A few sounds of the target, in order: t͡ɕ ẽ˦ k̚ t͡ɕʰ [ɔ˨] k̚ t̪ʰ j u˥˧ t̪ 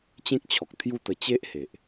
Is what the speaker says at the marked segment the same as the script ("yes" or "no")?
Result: yes